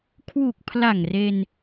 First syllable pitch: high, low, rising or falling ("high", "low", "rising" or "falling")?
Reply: low